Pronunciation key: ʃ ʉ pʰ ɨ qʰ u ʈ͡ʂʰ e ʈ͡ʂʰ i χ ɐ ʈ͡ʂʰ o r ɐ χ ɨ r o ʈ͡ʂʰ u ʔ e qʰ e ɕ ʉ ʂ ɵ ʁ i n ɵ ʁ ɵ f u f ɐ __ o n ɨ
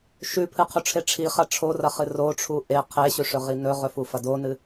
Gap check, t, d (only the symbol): d